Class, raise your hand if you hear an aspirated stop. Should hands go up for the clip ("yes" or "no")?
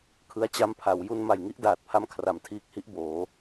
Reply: yes